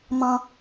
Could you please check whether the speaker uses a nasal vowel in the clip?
yes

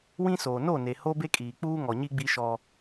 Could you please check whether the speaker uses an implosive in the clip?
no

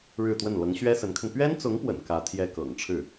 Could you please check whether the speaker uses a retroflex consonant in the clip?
yes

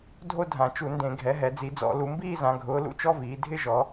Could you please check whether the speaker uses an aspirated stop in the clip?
no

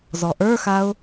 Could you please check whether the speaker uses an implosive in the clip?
no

